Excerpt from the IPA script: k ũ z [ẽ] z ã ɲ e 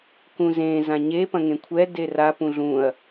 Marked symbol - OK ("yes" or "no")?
yes